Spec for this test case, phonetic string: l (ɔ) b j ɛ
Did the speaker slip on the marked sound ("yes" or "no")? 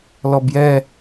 no